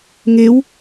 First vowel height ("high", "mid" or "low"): mid